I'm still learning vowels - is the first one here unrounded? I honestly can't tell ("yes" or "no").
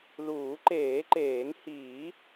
no